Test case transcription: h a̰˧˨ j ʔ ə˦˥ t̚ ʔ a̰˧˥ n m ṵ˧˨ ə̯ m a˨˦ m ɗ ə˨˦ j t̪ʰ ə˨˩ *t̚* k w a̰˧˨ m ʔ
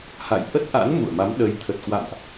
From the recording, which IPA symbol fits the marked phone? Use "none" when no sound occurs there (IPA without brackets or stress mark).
t̚